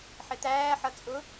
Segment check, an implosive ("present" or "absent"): absent